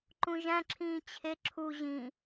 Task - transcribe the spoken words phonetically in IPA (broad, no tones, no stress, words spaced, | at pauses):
ǃũʒæ̃ǁʰĩː t͡ɕʰe ǁʰu ʑĩ